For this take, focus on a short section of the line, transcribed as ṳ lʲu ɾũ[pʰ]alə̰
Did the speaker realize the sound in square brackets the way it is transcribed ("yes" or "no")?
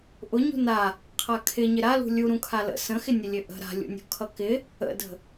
no